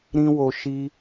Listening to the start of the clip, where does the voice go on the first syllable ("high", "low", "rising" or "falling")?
high